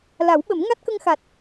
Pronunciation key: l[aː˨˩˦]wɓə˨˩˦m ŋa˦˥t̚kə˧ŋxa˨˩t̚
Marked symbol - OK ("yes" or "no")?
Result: no